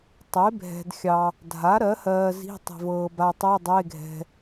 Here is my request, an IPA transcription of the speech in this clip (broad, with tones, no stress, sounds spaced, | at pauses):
tˤ e˩˥ bʱ ɛ̤˨ d xʲ ɑ˨ | dʱ a˩˥ ɾ ɜ˩˥ h ɜː˨ z i̤˧˥˧ tˤ ɛ̤˨ v ɤː˨ b a˨ tˤ e˧˥˧ dˤ e˧˥˧ ɡʱ ɛ̤˨